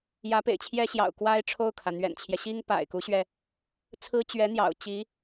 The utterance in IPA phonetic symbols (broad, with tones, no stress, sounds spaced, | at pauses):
j ä˧˥ p ḛ˨˩ ɪ̯ t͡ɕʰ j ɛ˥ ɕ j ɑ̰˨˩ ʊ̯ k w a˥ ɪ̯ ʈ͡ʂʰ o˥˩ ʊ̯ kʰ ä˩ n̪ ɥ ɛ̰˨˩ n t͡ɕʰ j ɛ˦ ɕ i˥ ŋ p a̰˨˩ ɪ̯ k u˧˥ ɕ ɥ ɛ˧ | t͡sʰ ɹ̩˥ t͡ɕ ɥ ɛ˧˥ n̪ j ɑ̰˨˩ ʊ̯ t͡ɕ i˧˥